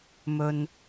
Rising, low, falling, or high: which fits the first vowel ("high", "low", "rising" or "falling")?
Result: low